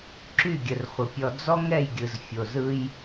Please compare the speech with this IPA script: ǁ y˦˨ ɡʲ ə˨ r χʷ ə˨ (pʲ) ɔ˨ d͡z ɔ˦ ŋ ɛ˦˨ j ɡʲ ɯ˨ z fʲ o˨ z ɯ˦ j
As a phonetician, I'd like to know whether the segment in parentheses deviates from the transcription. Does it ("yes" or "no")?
no